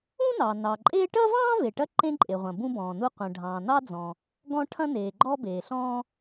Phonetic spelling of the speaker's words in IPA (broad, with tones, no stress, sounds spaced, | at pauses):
ũ˥ n ɑ˩ n ɑ˩ ǃʼ eː˥ ʈ ɐ˥ v ɑ̃ː˥ v e˩ ʈ ɐ˥ ǃ ẽ˥ ǃʼ e˩ ʁʷ ɐ̃˩ b ũ˥ b ɔ̃ː˩ n u˥ qʷ ɐ̃˩ ɖʱ ɑ̃ː˩ n ɑ˥ d͡z ɔ̃˩ | ɡ ɔ̃˥ ʈʰ ɐ̃˥ n eː˩ ɡ͡ǃ ɔ˥ b eː˩ ɬ ɔ̃ː˥